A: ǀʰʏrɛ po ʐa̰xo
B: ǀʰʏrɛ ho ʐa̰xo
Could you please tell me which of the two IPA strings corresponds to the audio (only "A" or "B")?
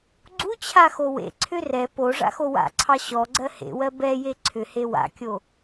A